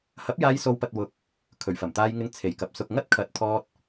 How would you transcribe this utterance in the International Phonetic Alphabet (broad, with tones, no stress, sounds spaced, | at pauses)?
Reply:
h ɐ˨˥ p̚ j aː˧ j s o˨˧ w p ɐ˨ t̚ w ʊ˧ k̚ | kʰ ɵ˨˩ ɥ f ɐ˨˩ m t̪ aː˧ j ŋ ɪ˧ ŋ t͡sʰ e˨˩ j k ɐ˨ p̚ s ʊ˧ k̚ ŋ ɐ˥ t̚ kʰ ɐ˨˥ t̚ t̪ʰ ɔː˧ t̚